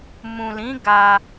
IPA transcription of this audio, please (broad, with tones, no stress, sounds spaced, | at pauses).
m ũ˨ l ĩ˨˦ ɡ a˧